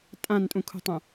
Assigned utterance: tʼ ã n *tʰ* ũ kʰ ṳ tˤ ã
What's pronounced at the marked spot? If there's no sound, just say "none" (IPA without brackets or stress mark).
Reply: tʼ